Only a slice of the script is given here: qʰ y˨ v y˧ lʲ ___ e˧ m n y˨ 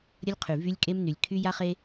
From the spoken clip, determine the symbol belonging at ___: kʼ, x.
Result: kʼ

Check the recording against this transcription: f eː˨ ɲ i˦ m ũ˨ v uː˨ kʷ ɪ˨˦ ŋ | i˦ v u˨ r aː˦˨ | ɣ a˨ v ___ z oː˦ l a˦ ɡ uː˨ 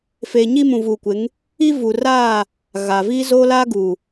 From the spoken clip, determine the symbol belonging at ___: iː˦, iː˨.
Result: iː˦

